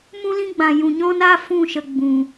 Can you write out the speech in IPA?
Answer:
m ũ˦ l ĩ˦ ɡ͡b ã˨ j ũ˨ ɲ ɔ̃˦ n aː˦ f ũ˦˨ ʃ ə˨ ɡ͡b ũ˨

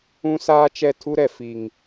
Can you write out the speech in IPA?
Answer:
ũ˦ s aː˦ t͡ʃ ɛ˦˨ tʰ u˦ ɾ ɛ˨ f i˨ ŋ

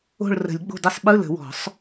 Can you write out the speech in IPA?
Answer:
o̤˦˨ ɭ r ə̤˨˩˦ lʲ ɡ͡b o̤˦˨ d ə˦˨ sˤ ɓ ɯ˧˥˧ l ə̤˨˩˦ w ɔ̤˨˩˦ sˤ

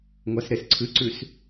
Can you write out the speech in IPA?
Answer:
ŋʷ a s ɾ e s ǀʰ ɨ ǀ ʉ s

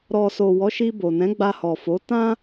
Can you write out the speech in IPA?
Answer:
ɾ ɔ˨ s o˨ w ɔ˨˦ ʃ i˧ b o˨ n ɛ̃˨˦ ɡ͡b a˧ h ɔ˨ f o˨˦ t ã˦

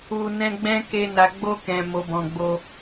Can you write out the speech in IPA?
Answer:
u˨ n ɛ̃˧ ɡ͡b ɛ̃˦ k e˧ n a˨ ɡ͡b o˧ k ɛ̃˨ m o˨ b ɔ̃˨ ɡ͡b o˧

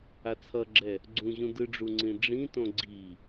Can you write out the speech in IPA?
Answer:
a t͡sʰ ʌ ɡ͡ǁ ɛ | ɡ͡ǀ ũ ʑ ũ d ɯ ɖ͡ʐ u ŋ͡ǀ ĩ ɖ͡ʐ ĩ t õ ɡ͡ǀ i

